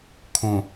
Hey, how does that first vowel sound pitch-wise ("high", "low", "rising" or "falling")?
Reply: low